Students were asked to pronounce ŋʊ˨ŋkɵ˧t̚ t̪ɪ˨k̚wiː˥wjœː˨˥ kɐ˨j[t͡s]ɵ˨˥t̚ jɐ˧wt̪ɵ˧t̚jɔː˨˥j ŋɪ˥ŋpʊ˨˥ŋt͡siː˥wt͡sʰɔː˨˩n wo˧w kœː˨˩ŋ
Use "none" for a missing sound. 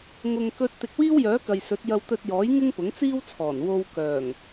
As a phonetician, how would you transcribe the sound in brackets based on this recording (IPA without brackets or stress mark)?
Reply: s